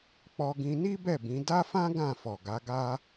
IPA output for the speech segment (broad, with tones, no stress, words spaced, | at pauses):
k͡pɔ˧ɡĩ˧ni˦ bɛ˦˨bĩ˨˦ da˦fã˦ ɡã˦˨fɔ˨ɡa˨˦ɡa˦